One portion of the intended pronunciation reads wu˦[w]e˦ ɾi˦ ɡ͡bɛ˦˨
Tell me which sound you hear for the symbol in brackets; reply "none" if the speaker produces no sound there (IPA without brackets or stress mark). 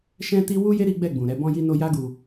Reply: j